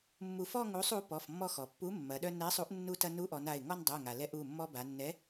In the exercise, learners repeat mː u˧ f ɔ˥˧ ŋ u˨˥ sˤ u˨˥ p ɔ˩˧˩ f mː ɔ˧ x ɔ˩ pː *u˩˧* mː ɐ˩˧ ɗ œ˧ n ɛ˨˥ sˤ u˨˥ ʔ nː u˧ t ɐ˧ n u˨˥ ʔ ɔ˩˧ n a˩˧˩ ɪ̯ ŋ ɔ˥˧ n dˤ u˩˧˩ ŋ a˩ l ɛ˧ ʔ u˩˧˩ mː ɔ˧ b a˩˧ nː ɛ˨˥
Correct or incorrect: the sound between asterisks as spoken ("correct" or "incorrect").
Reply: incorrect